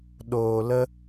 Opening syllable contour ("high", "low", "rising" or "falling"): low